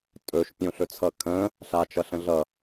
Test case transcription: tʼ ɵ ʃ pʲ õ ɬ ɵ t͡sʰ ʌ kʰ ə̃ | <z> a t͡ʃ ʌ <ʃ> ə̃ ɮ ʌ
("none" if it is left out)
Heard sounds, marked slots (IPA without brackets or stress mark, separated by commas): ɬ, ɬ